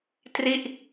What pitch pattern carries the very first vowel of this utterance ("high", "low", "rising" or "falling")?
falling